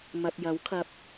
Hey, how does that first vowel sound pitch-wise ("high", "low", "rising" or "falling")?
low